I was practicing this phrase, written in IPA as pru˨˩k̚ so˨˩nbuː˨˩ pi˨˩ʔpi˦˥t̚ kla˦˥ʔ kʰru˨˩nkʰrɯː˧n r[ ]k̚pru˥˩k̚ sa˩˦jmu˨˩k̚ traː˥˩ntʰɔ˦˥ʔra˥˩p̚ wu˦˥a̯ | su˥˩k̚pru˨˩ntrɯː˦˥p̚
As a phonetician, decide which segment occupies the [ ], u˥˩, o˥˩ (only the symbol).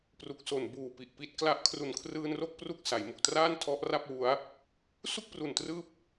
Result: o˥˩